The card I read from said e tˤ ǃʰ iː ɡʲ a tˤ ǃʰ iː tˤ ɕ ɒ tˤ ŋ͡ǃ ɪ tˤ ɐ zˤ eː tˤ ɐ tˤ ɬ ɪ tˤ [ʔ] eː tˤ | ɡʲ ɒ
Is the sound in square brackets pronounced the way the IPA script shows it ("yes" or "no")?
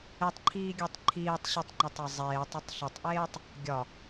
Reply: yes